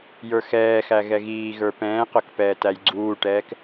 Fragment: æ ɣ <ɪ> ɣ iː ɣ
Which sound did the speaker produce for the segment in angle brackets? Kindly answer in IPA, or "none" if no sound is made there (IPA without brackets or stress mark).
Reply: ɛ